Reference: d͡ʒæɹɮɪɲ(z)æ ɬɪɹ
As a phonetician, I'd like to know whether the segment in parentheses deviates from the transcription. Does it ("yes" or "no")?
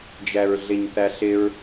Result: yes